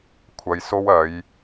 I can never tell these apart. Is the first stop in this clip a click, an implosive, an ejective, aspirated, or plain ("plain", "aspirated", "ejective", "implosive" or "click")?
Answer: aspirated